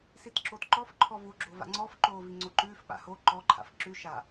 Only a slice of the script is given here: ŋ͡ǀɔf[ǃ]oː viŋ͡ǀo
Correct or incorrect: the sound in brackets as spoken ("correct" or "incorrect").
correct